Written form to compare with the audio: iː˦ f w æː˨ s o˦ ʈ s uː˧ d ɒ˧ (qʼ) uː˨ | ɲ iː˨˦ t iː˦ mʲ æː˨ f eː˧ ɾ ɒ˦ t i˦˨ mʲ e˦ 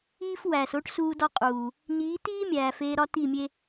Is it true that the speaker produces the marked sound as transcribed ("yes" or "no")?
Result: yes